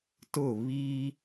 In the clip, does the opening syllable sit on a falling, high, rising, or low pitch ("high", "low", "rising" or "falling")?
falling